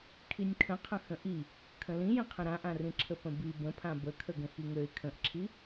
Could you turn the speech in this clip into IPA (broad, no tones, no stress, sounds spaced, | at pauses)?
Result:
kʰ i nʲ kʰ ə̃ qʰ ə̃ x ə̃ ʔ i | kʰ ə̃ l ĩ j ĩ qʰ ə̃ ɾ ã ʔ ã r ĩ ǁʰ ə p ə̃ b i b ə̃ pʰ ã b ə kʰ ə ɡ ə̃ x i ŋ ø ɪ̯ kʰ ə̃ ʔ ǁʰ i